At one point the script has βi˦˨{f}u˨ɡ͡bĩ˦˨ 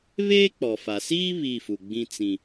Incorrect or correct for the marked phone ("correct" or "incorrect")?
correct